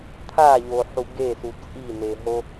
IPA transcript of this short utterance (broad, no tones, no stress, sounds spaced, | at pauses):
t̪ʰ a ʎ o ħ u ɡ e s u t͡sʼ i n e ɦ o